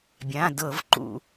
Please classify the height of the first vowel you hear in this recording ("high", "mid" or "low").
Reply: low